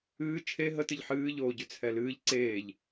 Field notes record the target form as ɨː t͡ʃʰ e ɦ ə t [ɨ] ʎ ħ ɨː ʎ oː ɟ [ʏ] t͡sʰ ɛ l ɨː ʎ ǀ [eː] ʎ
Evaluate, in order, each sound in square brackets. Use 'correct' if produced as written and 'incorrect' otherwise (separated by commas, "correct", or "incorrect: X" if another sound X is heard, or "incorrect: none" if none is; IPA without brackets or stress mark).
correct, correct, correct